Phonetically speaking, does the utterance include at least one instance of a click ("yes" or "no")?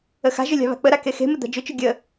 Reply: no